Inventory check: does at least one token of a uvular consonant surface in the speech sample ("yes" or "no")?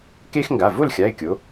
no